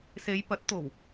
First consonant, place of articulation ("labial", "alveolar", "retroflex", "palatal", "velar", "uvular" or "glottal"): alveolar